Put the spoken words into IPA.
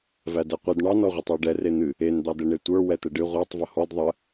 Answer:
v æ d ɛ qʷ ɨ d ɳ ɑ n ɔ ʁʷ ə tˤ a ɖ ɛ r e n̪ ɨ | e n d̪ ɑ d̪ ɛ ɳ e tʷ ə˞ w ɛ t̪ ɛ ɖ ɨ ʁʷ a tˤ v ə h ɔ d ðˤ ə

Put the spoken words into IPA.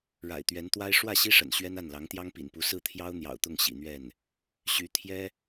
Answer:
ɻ a̰˨˩ ɪ̯ t̪ ɥ ɛ˧˥ n t̪ w a˥ ɪ̯ ʂ w ä˥˩ ɕ i˥ ʂ ə̰˨˩ n ɕ ɥ ɛ˥ n a˥˩ n l ɑ˧˥ ŋ t̪ j ɑ˥ ŋ p ḭ˨˩ n p u˧˥ s ɹ̩˥˩ t̪ʰ j ɑ˥ ʊ̯ n̪ j ɑ̰˨˩ ʊ̯ t̪ ʊ˥˩ ŋ ɕ ḭ˨˩ n̪ ɥ ɛ˥˩ n | ɕ y˧˥ t̪ʰ j ɛ˥

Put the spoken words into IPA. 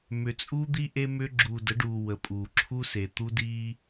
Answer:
m ʏ˨ t͡sʼ uː˦ d̪ i˦ ʔ e˦ m ʏ˦ ɡ͡ǁ uː˨ d ə˨˦ ɖ uː˨ w ə˨ pʼ uː˨ ǁʰ u˦ s e˨ t̪ u˦ d iː˦

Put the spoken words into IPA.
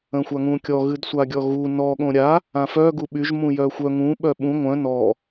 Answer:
ə̃ xʷ a ŋ ũ kʲ ɔ ɣ ɨ d sʷ a ɡʲ ɔ ɣ u n ɔ ɠ õ ɾʲ a | ã f œ ɡ u ɓ y ʒ m ũ j œ xʷ œ ŋ ũ ɓ œ ɓ ũ ŋʷ œ̃ n ɔ

